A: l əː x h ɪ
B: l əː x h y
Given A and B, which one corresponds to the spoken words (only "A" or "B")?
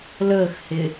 A